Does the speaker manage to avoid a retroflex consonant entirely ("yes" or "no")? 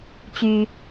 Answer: yes